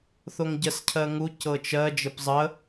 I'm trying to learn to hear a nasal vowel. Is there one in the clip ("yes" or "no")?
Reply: no